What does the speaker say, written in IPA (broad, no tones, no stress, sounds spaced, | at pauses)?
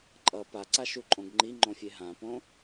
ǃʼ ʌ p a ǀ a ʃ u ǃʼ õ ɡ ŋ͡ǃ i ŋ͡ǃ õ fʲ e ɦ ã p õ